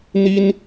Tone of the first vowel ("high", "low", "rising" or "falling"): high